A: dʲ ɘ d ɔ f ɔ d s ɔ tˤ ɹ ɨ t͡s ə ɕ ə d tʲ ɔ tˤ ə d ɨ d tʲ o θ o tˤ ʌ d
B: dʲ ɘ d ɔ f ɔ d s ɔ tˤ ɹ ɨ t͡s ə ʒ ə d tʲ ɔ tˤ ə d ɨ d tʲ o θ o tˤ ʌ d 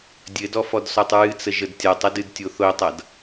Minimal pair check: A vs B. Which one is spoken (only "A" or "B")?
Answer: B